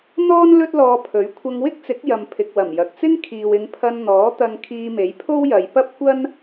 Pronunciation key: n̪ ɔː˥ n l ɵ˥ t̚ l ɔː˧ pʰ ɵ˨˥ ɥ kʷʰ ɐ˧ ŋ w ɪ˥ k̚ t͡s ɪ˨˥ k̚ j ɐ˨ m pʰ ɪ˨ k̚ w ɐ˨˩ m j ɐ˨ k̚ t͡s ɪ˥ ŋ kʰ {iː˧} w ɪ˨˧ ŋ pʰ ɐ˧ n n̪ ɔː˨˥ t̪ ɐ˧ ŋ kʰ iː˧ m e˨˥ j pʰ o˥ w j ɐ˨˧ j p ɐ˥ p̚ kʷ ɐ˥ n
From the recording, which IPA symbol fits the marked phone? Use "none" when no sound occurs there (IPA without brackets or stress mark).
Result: iː˨